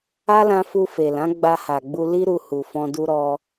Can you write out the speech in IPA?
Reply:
a˦lã˧fu˧ fe˨lã˨˦ ɡ͡ba˧ha˨ɡ͡bu˧ li˦ɾu˧ hu˨fɔ̃˧ du˧ɾɔ˧

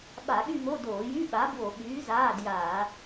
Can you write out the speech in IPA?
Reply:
ɓa˧˩˧ɠy˥˧mo˧˥˧ doː˧˩˧jy˧˥˧ɓa˨˥ bwo˧˩˧ɓyː˨˥ zaː˧˥˧djaː˧˩˧

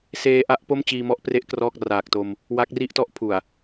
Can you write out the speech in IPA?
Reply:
seː˧ʔa˦˥ʔ po˥˩mt͡ɕiː˧mɔ˦˥ʔpre˦˥ʔ krɔː˥˩k̚ raː˨˩k̚to˧m | wa˦˥k̚ri˥˩ʔtɔ˦˥ʔpʰu˨˩a̯

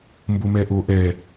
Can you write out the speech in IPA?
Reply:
mbomɛʔo ʔɛ

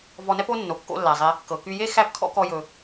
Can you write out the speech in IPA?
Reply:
vɔ˧nɛ˥po˥ nːo˩ kːo̰˥lːæ˩zˤe˧ | kɤ˩ky˧je˥ xæ˥pkʰɔ̰˥kɔ˧jɵ˩

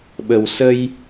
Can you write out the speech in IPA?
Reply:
ɓə˨˩wsə˧j

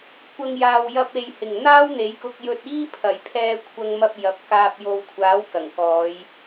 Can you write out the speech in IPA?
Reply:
kʷɐ˨ŋ jaː˨wjɐ˧p̚ e˨j hɪ˨˩ŋ n̪aː˥wn̪e˨˥jkʊ˧k̚ jɵ˧t̚iː˥ pʰɐ˨˩jpʰɛː˧kʷʰɐ˧ŋmɐ˧p̚ jɐ˨˥p̚kaː˧p̚jo˧w kʷʰaː˨˥wkɐ˨˩ŋkɔː˨˧j

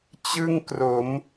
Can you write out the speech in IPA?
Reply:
t͡ɕɯ˥˩ŋkro˩˦m

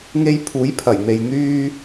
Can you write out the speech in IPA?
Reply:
ŋe˧j pʰuː˨˥jpʰɐ˨˩jn̪e˨j n̪yː˧

